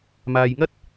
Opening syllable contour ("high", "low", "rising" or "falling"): low